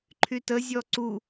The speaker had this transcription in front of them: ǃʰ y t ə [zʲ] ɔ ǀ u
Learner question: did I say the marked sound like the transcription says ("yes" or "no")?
yes